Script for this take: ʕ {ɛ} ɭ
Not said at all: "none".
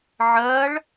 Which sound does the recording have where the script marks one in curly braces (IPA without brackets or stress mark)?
ɜ